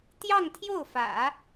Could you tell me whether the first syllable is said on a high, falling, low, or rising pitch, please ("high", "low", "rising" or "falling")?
falling